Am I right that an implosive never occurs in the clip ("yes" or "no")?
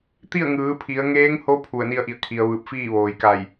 yes